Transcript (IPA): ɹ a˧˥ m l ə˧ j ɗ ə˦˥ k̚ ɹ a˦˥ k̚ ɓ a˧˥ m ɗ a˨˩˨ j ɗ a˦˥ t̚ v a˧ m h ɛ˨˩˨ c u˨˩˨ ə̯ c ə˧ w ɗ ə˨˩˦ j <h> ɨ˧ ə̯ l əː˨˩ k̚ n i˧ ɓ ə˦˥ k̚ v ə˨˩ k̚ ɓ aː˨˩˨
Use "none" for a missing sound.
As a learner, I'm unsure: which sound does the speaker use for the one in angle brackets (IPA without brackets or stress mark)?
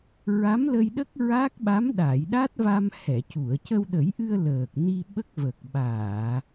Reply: ʔ